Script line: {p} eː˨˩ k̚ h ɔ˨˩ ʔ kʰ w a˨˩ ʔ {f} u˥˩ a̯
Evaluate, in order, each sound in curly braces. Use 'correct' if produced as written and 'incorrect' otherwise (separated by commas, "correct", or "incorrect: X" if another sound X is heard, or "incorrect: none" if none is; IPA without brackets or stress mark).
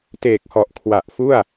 incorrect: t, correct